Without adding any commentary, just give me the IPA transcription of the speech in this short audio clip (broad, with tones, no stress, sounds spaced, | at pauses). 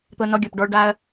t̪ ɤ˧ n ɔ˧ ɡʲ ɔ˨ p ɖ ɔ˧ ɭ ɖ a˧ ɐ̯